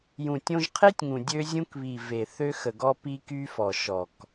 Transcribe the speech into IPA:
j ũ˨ tʲ õ˧ ʒ qʰ e˦ tʲ ŋ ũ˨ dʲ ø˧ zʲ ũ˧ k β i˨ v e˨ θ ø˧ x ə˨ ɡ ɔ˧ p i˧ k y˧ f ɔ˨ ʃ ɔ˨ k

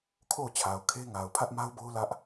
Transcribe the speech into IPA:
kʰ o˦˨ ʊ̯ t͡ɕʰ a˨ ʊ̯ kʰ e˦ ŋ a˨ ʊ̯ pʰ ä˦ ʔ m a˦ ʊ̯ b o˦ ʊ̯ l ä˦ ʔ

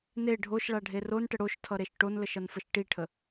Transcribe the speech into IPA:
n e ɖʱ o ʃ ɭ a ɖʱ e r o n ʈ ə ɽ o ʃ tʰ ʌ ɾ e ʃ ʈ o n l ə ʃ ʌ n f ə ʃ ʈ i ʈʰ ə

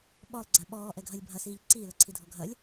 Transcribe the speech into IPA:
ɓ ɔ lˠ ɡ͡ǀ a ɓ ɔː ʔ ɛ ɡʱ ɐ lʲ bʱ ɐ s iː ʎ ǀ iː l ɐ ǀʰ i dʱ ɔ ɡʱ ɐ lʲ

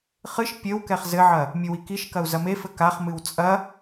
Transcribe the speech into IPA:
χ ɨ ʃ pʲ ɘ w k ɛ χ z ɘ ʕ ɐ | mʲ ɨ w i k i ʃ k ɐ u̯ z ɐ m e f ɘ k a χ m ɨ w t͡sʼ ɐ

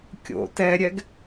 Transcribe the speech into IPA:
kʲ o̰ t ɛ ɾʲ ɛ ɡ

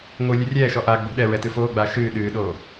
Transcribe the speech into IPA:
ŋʷ ɨ lʲ ɨ rʲ ɛː ʃ ɔ ʔ aː ɡ͡b o̤ ɗ ɛ ɹ ɛ t ɨ f oː ɡ͡b aː ʃ ɨː ɗ ɨː ɗ oː

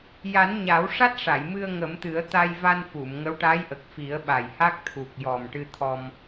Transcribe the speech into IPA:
j a˨˩˦ n ɲ a˨˩˦ w ʂ a˦˥ t̚ ʂ a˨˩˨ j m ɨ˧ ə̯ ŋ ə˨˩˦ m t̪ ɨ˨˩˦ ə̯ t̪ a˧ j v a˧ n f u˨˩˨ m ŋ ə˧˥ w ʈ a˧˥ j ʔ ə˨˩ k̚ f i˨˩˦ ə̯ ɓ a˨˩ j h a˦˥ k̚ t̪ʰ u˨˩ k̚ j ɔ˨˩ m ʈ ɨ˧ t̪ʰ ɔ˧ m

